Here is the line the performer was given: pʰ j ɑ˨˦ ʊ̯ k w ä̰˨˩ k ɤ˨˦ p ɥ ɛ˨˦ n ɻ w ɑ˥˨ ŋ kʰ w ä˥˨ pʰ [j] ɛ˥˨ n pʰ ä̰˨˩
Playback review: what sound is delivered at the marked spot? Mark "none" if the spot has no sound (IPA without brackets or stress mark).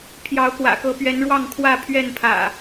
ɥ